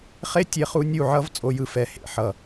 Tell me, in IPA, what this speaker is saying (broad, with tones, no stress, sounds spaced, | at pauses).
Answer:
χ e˦˥ tʲ e˦˥ χ u˦˥ nʲ u˥˨ ʕ ʌ˦˥ v t͡sʼ o˦˥ j ɯ˥˨ f ɛ˥˨ h ḛ˥˨ ħ ʌ˥˨